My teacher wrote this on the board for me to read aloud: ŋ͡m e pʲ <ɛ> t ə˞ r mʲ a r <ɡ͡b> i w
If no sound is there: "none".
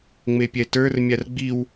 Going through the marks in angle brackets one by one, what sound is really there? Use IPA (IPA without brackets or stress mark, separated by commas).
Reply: ɛ, ɡ͡b